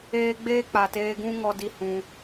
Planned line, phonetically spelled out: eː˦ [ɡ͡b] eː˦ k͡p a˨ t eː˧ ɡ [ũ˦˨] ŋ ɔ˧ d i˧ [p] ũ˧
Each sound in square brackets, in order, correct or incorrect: correct, incorrect: ũ˦, incorrect: h

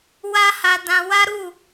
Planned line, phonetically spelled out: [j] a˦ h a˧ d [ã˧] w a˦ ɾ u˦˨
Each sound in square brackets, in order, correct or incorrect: incorrect: w, correct

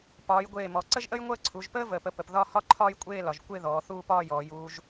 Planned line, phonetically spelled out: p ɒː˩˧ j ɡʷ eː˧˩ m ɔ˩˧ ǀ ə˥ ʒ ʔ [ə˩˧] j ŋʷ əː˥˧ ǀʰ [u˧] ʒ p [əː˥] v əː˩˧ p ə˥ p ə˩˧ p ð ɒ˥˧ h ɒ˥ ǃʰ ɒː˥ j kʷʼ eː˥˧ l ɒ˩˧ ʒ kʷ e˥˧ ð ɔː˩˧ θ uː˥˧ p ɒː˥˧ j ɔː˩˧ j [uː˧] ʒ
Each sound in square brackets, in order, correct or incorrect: incorrect: ə˥, incorrect: u˩˧, correct, correct

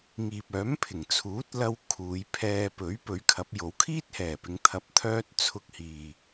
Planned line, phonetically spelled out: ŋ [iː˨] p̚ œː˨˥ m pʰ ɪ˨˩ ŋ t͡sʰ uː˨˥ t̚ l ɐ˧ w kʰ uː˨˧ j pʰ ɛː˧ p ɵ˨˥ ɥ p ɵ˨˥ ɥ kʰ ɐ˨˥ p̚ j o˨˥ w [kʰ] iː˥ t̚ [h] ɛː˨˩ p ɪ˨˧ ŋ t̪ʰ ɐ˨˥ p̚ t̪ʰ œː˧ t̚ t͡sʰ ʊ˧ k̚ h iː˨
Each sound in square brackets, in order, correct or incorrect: correct, correct, correct

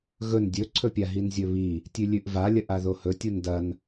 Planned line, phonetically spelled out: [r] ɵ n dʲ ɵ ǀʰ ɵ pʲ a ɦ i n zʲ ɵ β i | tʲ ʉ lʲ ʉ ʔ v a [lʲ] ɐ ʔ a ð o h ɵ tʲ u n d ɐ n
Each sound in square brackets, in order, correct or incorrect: incorrect: ɣ, correct

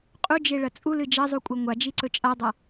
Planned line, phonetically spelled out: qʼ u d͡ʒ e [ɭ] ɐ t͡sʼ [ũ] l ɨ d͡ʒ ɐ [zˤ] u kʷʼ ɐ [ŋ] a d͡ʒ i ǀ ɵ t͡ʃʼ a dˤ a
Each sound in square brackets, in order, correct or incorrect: correct, incorrect: u, correct, incorrect: ŋʷ

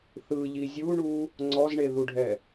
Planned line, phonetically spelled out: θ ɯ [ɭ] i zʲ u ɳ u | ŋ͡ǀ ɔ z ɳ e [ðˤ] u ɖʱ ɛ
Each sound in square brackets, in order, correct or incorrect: incorrect: ʎ, incorrect: ð

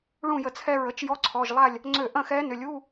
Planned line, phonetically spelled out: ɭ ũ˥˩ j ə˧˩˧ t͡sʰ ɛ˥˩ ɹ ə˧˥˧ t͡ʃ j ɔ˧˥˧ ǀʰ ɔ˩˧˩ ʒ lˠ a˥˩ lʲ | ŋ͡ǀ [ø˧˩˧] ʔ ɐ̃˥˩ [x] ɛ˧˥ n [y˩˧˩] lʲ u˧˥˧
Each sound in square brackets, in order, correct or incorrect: correct, correct, incorrect: ʏ˩˧˩

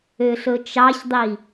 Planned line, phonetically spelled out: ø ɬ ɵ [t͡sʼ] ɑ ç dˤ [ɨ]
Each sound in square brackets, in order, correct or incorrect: incorrect: t͡ʃ, incorrect: i

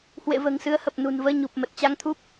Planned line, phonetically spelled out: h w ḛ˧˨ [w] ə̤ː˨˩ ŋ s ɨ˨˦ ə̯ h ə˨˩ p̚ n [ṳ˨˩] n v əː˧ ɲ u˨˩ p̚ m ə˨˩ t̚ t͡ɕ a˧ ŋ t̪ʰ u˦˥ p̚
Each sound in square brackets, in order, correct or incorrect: incorrect: v, correct

